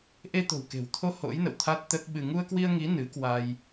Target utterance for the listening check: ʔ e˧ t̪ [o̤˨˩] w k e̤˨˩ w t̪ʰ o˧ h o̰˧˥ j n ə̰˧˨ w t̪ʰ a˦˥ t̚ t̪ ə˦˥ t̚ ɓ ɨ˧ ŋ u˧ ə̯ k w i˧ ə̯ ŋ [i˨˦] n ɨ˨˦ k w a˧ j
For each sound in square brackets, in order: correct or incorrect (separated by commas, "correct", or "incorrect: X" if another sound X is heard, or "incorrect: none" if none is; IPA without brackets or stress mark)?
correct, correct